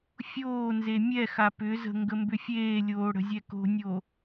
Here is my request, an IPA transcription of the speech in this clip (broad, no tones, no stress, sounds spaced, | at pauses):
fʲ oː n z e mʲ ɛ x a p ʏ z ə̤ ŋ ɡ ə m b ʏ fʲ eː lʲ oː ɽ ə̤ zʲ ɛ k o̤ nʲ o